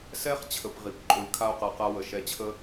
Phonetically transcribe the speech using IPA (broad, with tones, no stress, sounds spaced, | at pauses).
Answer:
s ɛ˧ χ t͡ɕʰ ə˩ p ʁ i˩ p ǃʼ o˩ lʲ kʰ a˧ o̯ q a˩ q a˧ w ə˩ ʃ ɛ˧ t͡ɕʰ ə˥